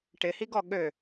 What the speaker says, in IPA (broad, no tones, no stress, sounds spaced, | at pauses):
ʈ ɪ h i ɡ ɔ ɠ ø